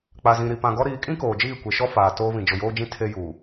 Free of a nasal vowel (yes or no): no